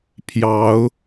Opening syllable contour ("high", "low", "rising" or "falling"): rising